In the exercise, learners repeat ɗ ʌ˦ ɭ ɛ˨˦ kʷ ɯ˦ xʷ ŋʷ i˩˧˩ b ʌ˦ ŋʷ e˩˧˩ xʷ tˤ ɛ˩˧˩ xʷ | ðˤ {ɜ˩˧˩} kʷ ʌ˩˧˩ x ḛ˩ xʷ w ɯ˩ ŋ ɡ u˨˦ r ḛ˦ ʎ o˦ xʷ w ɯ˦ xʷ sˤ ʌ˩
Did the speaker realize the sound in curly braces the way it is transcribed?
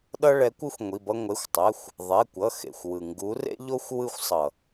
no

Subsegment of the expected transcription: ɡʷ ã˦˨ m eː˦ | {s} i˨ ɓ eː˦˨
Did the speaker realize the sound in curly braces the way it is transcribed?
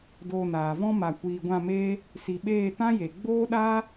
yes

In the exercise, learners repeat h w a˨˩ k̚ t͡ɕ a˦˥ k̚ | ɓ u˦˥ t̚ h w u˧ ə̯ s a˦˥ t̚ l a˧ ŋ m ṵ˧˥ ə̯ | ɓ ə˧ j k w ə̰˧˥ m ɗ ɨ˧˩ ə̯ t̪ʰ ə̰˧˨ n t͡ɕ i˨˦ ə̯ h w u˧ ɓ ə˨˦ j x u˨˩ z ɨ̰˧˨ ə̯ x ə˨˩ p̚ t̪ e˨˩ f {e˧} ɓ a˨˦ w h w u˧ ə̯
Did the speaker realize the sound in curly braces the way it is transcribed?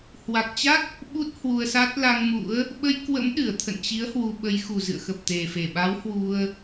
no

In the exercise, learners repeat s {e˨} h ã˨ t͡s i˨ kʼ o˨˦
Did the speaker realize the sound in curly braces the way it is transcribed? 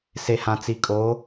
yes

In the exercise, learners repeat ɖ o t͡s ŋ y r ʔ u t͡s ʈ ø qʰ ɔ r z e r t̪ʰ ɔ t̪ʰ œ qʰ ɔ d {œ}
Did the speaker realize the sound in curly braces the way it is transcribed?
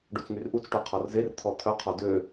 no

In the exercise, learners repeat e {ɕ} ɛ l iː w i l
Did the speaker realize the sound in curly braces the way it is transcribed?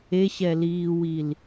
yes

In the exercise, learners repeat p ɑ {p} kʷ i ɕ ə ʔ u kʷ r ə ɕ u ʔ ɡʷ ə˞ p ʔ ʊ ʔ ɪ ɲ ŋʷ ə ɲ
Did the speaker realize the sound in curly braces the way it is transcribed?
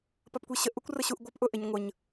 yes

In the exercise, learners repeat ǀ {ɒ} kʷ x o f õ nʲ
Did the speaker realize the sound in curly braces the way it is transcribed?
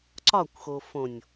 yes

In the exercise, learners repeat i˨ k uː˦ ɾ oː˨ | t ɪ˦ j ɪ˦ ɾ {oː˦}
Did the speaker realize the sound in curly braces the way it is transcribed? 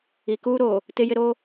yes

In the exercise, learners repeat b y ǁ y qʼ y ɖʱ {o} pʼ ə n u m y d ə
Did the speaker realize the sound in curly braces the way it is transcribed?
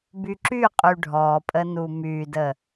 no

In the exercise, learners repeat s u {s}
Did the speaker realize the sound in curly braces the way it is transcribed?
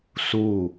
no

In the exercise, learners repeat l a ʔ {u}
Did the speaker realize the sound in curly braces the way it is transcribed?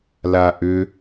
no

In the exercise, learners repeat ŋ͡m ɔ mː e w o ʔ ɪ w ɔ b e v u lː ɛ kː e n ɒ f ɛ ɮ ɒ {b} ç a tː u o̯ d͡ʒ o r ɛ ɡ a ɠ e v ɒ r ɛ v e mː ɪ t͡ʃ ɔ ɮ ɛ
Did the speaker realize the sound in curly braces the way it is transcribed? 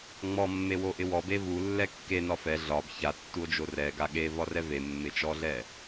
yes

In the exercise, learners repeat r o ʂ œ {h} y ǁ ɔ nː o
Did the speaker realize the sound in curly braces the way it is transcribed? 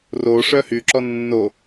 yes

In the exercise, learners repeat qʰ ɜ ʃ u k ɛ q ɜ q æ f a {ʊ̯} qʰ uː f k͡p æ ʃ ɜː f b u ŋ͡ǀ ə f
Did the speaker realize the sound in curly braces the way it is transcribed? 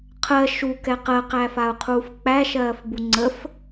yes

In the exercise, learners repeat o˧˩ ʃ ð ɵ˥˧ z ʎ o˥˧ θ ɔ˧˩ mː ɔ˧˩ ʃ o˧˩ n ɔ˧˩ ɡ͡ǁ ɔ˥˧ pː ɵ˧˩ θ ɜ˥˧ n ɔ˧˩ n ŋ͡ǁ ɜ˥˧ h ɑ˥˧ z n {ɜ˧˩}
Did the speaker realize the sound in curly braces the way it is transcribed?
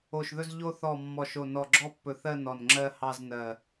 yes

